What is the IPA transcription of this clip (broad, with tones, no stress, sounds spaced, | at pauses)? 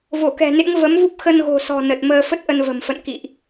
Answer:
v o˧˩ k ɛ̤˨˩ n ḛ˧˥ ŋ v ə˨˦ m v u˦˥ p̚ x ə˧ n ɣ o̤˨˩ s ɔ̤˨˩ n ə˨˩ t̚ m əː˧ f ə˦˥ t̚ ʔ ə˧ n v ə̤˨˩ m f ə̰˧˨ n k ḭ˧˨ ʔ